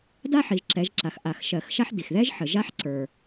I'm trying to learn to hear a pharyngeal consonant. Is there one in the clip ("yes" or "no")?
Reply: yes